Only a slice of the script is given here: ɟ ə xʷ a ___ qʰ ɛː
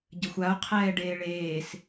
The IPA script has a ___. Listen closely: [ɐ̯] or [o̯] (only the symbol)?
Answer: o̯